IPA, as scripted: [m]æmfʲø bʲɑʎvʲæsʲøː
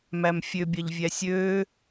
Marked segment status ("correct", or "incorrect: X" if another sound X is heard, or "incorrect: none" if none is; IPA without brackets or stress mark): correct